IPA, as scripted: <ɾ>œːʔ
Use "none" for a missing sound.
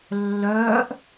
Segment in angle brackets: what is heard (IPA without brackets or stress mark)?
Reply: lː